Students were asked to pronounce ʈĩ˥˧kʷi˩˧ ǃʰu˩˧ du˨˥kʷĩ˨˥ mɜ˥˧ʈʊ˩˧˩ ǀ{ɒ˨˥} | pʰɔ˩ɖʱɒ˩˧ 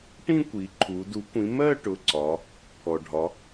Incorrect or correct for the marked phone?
incorrect: ɒ˩˧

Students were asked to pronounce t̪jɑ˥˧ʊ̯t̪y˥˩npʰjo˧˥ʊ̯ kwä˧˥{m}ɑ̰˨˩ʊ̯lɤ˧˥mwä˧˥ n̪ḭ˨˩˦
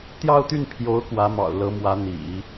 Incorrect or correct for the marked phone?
correct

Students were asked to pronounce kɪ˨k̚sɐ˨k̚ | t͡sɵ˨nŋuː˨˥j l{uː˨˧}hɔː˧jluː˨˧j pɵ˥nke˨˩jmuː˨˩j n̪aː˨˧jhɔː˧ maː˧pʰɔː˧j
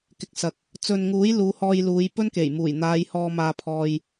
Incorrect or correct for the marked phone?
correct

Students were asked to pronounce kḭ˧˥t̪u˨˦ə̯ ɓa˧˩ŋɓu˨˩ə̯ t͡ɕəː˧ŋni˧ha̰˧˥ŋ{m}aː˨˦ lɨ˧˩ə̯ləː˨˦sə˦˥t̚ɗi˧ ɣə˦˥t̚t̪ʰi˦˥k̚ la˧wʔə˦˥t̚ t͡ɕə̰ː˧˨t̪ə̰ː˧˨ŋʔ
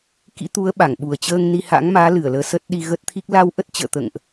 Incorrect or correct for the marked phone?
correct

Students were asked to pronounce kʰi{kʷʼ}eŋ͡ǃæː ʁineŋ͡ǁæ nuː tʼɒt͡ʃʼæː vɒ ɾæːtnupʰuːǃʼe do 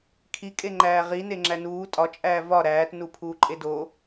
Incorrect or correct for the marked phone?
incorrect: kʼ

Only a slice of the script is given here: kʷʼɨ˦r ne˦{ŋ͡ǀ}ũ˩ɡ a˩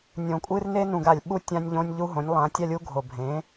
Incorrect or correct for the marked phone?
incorrect: n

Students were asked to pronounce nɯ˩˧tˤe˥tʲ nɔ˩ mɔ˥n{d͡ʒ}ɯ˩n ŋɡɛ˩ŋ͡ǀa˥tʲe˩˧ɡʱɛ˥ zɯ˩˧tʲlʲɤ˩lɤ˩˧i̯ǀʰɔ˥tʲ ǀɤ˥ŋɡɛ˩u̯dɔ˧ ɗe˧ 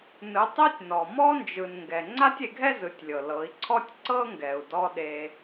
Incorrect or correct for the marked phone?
correct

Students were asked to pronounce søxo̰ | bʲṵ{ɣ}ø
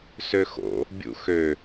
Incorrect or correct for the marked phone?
incorrect: x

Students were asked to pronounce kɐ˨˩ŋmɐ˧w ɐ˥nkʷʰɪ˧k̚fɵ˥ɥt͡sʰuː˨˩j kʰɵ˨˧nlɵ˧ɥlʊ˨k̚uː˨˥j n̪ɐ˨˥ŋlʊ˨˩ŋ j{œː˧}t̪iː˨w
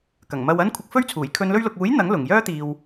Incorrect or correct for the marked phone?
incorrect: œː˥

